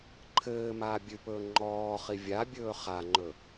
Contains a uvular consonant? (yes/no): yes